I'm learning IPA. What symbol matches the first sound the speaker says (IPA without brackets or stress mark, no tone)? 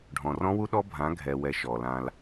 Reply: ɖʱ